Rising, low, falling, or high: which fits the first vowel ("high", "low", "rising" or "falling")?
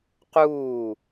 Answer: falling